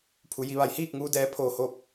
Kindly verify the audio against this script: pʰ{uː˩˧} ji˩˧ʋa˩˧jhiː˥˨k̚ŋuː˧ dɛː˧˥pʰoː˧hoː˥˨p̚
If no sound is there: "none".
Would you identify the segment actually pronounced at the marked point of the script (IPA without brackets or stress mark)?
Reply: u˩˧